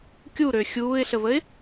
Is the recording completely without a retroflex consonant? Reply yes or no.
yes